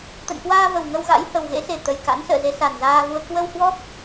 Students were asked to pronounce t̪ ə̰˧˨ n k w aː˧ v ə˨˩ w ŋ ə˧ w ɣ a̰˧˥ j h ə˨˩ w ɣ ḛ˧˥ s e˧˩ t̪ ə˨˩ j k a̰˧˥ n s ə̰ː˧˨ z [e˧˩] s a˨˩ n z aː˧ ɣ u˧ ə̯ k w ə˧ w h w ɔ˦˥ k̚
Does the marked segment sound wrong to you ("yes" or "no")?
yes